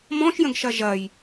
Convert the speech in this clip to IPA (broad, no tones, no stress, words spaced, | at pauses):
mɔ̃ʃjə̃ɡʃɐ ʒɐj